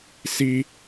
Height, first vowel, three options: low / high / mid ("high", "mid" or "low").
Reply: high